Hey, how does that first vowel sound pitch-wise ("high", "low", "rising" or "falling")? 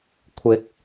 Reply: rising